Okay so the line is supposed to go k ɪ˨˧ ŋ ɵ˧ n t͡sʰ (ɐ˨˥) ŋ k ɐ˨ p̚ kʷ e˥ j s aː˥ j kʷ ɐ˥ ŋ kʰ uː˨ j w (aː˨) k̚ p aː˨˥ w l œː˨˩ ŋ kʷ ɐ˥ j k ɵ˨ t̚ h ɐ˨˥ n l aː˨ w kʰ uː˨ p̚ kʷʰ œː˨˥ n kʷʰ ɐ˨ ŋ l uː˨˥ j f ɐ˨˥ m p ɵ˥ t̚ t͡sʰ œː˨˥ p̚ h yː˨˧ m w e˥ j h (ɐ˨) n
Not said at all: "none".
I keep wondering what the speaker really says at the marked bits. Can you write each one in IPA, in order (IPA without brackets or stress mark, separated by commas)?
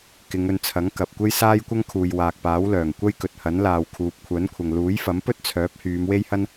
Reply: ɐ˨˥, aː˨, ɐ˥